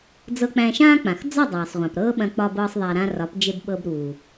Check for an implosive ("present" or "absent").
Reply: present